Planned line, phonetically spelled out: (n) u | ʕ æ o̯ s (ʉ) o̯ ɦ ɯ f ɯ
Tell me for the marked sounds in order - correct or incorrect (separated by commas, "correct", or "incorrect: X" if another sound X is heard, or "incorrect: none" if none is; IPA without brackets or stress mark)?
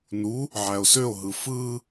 correct, incorrect: ø